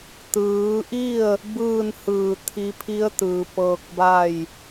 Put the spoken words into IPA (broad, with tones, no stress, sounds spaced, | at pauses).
t̪ ɯː˩˧ ʔ i˥˨ ə̯ | b ɯː˥˨ n h ɯː˧˩ t̪ʰ i˧ pʰ i˧˥ ə̯ t̪ ɯː˩ p ɤː˧ k̚ b a˥˨ j